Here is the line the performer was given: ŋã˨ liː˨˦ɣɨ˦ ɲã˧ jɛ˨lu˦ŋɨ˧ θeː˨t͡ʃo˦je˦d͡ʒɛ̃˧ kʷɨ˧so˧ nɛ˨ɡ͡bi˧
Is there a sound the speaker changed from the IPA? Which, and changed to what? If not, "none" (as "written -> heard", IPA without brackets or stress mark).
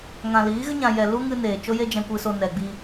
θ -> n